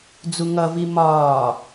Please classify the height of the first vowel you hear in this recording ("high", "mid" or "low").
high